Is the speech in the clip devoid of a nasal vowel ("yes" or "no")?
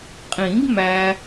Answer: no